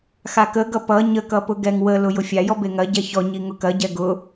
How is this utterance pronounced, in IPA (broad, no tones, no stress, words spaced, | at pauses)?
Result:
xakəɡʌ pʌ ɲəkʌpʊ ɡɛŋwəlʊ jʊfʲajɔ beŋɐ ɟɛçɔ ɲiŋʊkɐ ɟɛɡʊ